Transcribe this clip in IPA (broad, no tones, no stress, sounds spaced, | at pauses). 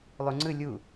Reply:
lˠ u ŋ͡ǀ ɯ lʲ u